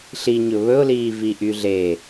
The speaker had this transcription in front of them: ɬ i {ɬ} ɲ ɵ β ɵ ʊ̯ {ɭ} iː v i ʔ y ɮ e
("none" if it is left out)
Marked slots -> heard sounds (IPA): none, l

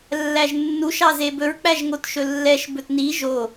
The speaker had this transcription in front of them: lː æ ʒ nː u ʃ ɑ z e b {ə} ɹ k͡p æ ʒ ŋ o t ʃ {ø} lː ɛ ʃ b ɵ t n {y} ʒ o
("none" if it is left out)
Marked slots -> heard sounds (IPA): ɵ, ɵ, i

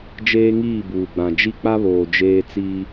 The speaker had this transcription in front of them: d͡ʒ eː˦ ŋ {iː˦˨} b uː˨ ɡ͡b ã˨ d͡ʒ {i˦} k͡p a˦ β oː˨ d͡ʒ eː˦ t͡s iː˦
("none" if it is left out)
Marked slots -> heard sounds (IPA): iː˦˨, i˦

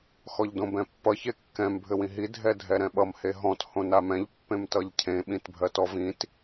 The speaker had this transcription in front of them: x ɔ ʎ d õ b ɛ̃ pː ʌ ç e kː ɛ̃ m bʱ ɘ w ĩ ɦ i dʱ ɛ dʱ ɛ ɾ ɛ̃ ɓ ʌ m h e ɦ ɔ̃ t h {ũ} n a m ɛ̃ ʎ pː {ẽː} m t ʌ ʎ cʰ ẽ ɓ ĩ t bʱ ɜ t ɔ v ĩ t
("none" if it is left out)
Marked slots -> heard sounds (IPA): õ, ẽ

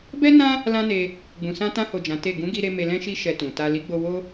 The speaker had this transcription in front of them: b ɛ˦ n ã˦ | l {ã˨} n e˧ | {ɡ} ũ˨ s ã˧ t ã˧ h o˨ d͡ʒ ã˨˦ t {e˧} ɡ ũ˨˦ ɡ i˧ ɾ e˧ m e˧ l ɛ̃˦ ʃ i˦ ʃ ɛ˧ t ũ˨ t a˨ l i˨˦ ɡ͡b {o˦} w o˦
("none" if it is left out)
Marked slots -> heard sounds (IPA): ã˦, ɡ͡b, e˦˨, o˧

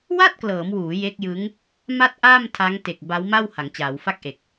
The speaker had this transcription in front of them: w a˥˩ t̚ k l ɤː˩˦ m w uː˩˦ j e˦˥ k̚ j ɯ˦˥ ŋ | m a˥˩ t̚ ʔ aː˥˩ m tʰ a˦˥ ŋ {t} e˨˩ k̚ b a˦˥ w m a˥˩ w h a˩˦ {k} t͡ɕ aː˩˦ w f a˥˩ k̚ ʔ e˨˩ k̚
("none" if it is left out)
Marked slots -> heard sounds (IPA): t, ŋ

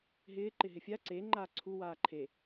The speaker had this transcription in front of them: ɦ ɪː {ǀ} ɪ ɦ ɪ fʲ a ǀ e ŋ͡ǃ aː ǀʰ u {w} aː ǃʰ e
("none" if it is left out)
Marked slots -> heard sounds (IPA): ǃ, w

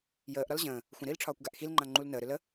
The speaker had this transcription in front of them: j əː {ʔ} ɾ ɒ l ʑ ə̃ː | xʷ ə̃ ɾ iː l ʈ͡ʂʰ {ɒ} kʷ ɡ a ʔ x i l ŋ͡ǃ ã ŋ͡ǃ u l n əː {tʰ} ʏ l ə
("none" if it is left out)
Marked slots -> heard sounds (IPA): ʔ, ɒː, ɾ

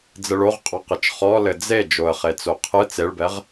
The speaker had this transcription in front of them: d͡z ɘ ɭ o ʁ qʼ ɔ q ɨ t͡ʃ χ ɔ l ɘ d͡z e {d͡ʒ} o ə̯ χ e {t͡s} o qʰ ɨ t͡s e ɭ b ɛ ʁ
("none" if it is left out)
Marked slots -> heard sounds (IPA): d͡ʒ, t͡s

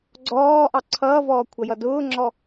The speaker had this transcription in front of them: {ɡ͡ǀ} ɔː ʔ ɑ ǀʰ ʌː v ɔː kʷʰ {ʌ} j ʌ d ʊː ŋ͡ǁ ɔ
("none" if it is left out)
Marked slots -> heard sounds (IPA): ɡ͡ǀ, ʌ

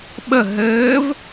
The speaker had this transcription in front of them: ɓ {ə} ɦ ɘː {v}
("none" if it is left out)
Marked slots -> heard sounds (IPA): ə, v

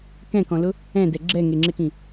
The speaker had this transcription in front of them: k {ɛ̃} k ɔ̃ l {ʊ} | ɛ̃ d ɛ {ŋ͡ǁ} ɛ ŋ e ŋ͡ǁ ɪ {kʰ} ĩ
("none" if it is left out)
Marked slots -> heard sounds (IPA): ɛ̃, ʊ, ɡ͡ǁ, k

